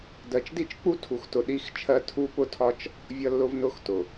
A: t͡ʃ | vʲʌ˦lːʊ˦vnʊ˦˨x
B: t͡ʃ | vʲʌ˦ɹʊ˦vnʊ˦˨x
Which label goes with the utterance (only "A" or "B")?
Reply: A